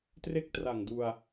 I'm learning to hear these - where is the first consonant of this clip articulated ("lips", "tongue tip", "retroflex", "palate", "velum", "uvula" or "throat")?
tongue tip